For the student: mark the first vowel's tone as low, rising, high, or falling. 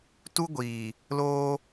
high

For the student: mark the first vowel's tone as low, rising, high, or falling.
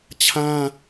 high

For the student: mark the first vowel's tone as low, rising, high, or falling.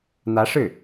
rising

